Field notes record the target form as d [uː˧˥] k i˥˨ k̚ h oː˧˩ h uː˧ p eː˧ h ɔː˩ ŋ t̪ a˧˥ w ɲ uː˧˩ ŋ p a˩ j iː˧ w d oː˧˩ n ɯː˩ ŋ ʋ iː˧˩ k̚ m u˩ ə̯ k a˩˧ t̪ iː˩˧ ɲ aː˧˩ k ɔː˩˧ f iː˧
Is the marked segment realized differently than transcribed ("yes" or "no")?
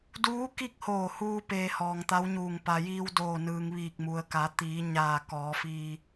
no